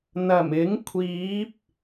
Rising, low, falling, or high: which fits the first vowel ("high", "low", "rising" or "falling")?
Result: low